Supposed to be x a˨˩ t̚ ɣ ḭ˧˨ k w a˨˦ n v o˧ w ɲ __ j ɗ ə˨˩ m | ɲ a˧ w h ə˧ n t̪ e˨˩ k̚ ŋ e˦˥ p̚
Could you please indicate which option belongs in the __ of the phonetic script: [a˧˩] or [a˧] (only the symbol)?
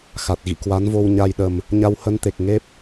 a˧